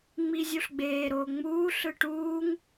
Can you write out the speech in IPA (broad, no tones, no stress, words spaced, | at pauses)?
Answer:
ŋ͡mizʲuɬɡ͡beːɾoː ŋ͡muːɬɯ ʈuːŋ